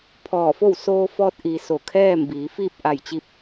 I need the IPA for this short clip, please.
pʰɔː˧˩fo˥˨w soː˧fɔː˧t̚ ʔi˩ so˧˩kʰɛː˥˨mbiː˩˧ fiː˥˨p̚ʔa˧˩jt͡ɕi˧p̚

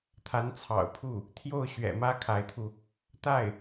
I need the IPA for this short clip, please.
t̪ʰa˧˥nt͡sʰɑ̰˨˩ʊ̯pʰu˥˩ | t̪ʰjo˥˩ʊ̯ɕɥɛ̰˨˩mä˥ kʰa˧˥ɪ̯t̪ʰu˧ | t̪a˥˩ɪ̯

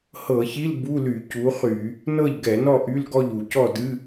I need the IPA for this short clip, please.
hɤ˧˩˧çi˧˥˧l bu˧˥˧ly˧˩˧ cu˨˥χy˧˩˧ | nɤ˥˨ʎɡɛ˧˩˧nɔ˥˨ ʔy˧˥˧lɡɔ˥˨ʎu˧˩˧ cɔ˥˨dɨ˧˥˧

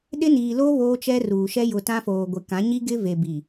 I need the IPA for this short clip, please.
ɗɪ˦niː˨lo˦ βoː˦t͡ʃɛ˦ruː˨ʃɛ˦ jʊ˨tã˦foː˨ ɡʷɪ˨kã˨˦ɲi˦ ɡɪ˦ve˨bi˨

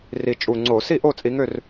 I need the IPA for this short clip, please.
ri˨˩t͡ʃʼu˨˩ŋ͡ǀo˧˩˧ si˥˨ʔo˥˨t͡sʼi˨˦ŋø˥˨r

